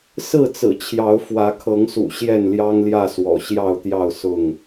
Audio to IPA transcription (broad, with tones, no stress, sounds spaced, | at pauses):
s ɹ̩˥˨ t͡s ɹ̩˨˩ t͡ɕʰ j ɑ˨˦ ʊ̯ f w ä˨˦ kʰ ɤ˨˦ ŋ s ṵ˨˩ ɕ j ɛ˥˨ n l j ɑ˦ ŋ l j ä˥˨ s w ɔ̰˨˩ ɕ j ɑ˥˨ ʊ̯ t̪ j ɑ˥˨ ʊ̯ s ʊ˥˨ ŋ